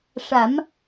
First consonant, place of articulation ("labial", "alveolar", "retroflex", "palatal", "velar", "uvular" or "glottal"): retroflex